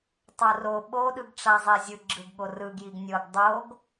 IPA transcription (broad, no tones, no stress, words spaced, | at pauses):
tˤoro ɓoɗɯɡ ʈ͡ʂazˤezʲɯ ɡ͡ǁɯɡɠorɯɡjiɡ nʲɤɡ dˤoɡ